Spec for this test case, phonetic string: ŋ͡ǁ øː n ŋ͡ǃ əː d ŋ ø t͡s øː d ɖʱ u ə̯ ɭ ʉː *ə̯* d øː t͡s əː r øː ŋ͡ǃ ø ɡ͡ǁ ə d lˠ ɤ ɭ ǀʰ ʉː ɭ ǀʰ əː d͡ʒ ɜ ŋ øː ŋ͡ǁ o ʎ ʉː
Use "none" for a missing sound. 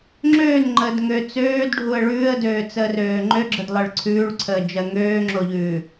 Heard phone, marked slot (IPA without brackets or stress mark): ə̯